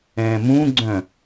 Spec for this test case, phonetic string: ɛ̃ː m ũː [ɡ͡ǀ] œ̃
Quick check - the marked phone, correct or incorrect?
correct